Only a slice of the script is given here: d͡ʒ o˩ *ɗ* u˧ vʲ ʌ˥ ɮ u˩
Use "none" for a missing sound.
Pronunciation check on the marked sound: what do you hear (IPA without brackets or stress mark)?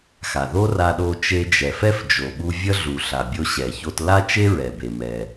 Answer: ɓ